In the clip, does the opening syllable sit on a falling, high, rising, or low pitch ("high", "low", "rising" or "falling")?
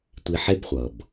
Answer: high